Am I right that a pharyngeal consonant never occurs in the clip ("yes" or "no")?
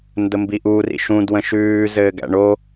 yes